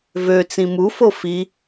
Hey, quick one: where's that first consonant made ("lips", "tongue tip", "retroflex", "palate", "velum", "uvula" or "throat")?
lips